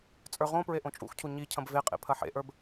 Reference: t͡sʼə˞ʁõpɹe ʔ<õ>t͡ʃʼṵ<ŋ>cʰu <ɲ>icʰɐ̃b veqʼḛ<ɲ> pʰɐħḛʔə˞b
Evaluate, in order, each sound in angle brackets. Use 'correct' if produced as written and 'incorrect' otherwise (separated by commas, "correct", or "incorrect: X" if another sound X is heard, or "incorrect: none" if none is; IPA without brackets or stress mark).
correct, incorrect: x, correct, incorrect: none